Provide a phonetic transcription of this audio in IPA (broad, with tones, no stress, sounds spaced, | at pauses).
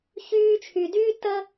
ç yː˧ t͡ʃʰ y˨ d yː˦ t ə˦